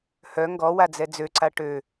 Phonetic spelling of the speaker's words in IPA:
h œ ŋ ɡ ɔ w a d͡z ɛ d͡z ø ǀ a ʈ ø

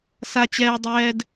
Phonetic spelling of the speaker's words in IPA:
s a˦ t͡ɕ ɛː˦ dˤ ɛː˦ d

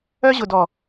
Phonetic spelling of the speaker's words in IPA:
œ˧ ʑ ʊ˨ d ɔ˨

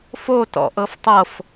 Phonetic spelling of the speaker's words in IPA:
f o t ɔ̰ ʔ ɤ f tˤ ɤ f

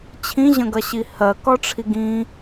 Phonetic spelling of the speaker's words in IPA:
t͡ɕʰ ĩ ʑ ə̃ ɡ ɐ ɕ i h ɜ k ɒ ʈ͡ʂʰ i ɡ ĩ

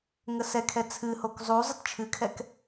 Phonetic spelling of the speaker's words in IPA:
ŋ ə s ɛ kʰ ɛ t͡sʰ ɨ h o k zˤ u zˤ ə t t͡ʃʰ ɨ kʰ ɛ k

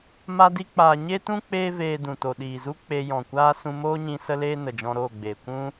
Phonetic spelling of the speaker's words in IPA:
m a˦ d i˦ k͡p aː˧ ɲ e˦ t ũ˦ k͡p eː˦ v eː˧ d ũ˨ t o˨ ɗ iː˨ z u˦ k͡p e˧ j ɔ̃˨ kʷ aː˦ s ũ˧ m oː˦ ɲ ĩ˧ s ə˧ l eː˧ n ə˨ d͡ʒ ɔ̃˧ ɾ oː˦˨ ɡ͡b eː˨ kʷ ũ˦

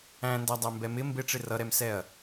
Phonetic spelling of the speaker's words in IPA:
æ̃ n d æ dˤ æ m b ɛ m ɪ m b ɪ ʈ͡ʂ ɪ r ʌ ɾ ɛ m s ɛ ɐ̯

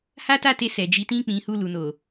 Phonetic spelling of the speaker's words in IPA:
h a˦ t a˦˨ t e˧ s ɛ˨ d͡ʒ i˨˦ t ĩ˦˨ k͡p ĩ˨˦ h u˦˨ l u˨ n o˨

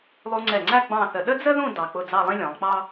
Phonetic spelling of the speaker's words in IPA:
lˠ u˧ ŋ͡ǀ ɛ˧˩ ŋ͡ǀ æ˥˧ ɡ͡b ɑ̃˥˧ θ ə˧ ɗ ə˥ d͡z ə˥ ð ũ˥˧ d ɑ˧ k͡p ʊ˥˧ d͡z ɑ˥˧ lˠ ĩ˥ lʲ ɔ̃˩˧ lˠ k͡p ɑ˥

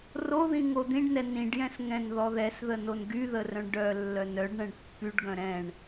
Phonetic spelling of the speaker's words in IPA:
r o ð ĩ ŋ o d̪ ĩ ɖ n ɛ n ĩ ɖ j ɛ̃ s ŋ ɛ̃ n ð ɔ ð ɛ s ð ə n o n ɡ y ð ə r œ̃ ɳ ɖ œ lː œ n œ ɖ ɳ ɛ̃ ɳ pː y ɖ ɡ œ̃ ɾ ɛ̃ ɳ

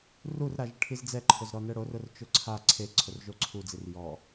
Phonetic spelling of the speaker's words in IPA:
r u r ɾ a ʒ ɪ ʈʰ i z d͡z ɛ ǃʰ ʊ z ɾ ɔ n ɛ ɽ o r ʊ r t͡ʃ ʊ ǀʰ a ǀʰ e ǀʰ ʊ r ʒ o ǀʰ u d͡z i r j ɔ

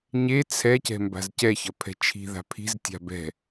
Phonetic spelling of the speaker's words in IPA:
ɲ e t͡sʰ ɛ c ɛ̤ m b a̤ z c ɛ ç ʌ pʰ ɛ̤ t͡ʃʰ i̤ ð a̤ pʰ i̤ z tʲ a̤ b ɛ̤

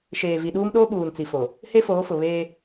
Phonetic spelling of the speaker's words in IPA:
ʃ eː˨ v i˨ ɗ uː˦ m ɗ oː˦ ɓ uː˨ n t͡s i˨ f o˨ | h e˦ f oː˨˦ f ʊ˨ β eː˦

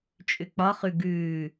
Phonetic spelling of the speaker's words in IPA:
t͡ʃʼ ʏ k͡p ɒ χ ʉ ɡ ʉː

